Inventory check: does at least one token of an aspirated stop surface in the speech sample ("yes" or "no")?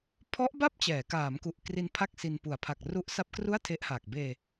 yes